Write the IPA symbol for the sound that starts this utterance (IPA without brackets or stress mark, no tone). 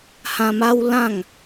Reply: h